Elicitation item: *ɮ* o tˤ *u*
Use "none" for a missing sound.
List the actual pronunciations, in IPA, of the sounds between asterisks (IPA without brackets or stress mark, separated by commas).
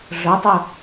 ɮ, o